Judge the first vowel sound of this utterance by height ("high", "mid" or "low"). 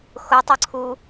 high